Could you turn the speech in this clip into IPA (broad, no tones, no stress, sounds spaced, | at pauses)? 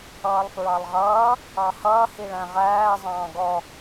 ʌː lˠ f ɹ ɑ lˠ ʁ ʌː | ɑ h ʌː h i ɭ æ̃ ʁ æː zˤ ɑ̃ː ɡ ɔ